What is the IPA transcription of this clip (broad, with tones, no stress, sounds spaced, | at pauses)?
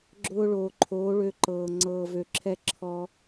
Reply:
ɡ͡ǁ ʊː˧ ɭ oː˨ ǃʰ oː˨˦ ɭ ø˧ ǃ ɤː˨ ŋ͡ǀ ɤː˨ v ø˨ ǁʰ ɛ˧ ǁʰ ɔ˧